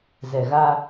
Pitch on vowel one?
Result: low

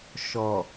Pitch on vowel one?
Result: low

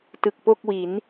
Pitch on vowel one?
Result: low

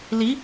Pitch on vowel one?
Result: rising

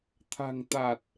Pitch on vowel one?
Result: low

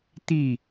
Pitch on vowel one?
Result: falling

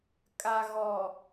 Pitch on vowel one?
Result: low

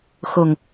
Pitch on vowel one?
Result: low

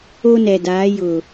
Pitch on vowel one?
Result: high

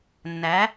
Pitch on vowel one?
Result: rising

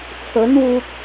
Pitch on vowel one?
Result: rising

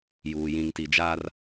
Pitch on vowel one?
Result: low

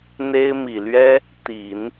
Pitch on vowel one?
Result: high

